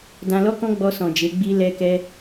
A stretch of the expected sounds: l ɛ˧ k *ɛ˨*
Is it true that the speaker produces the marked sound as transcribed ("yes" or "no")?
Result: no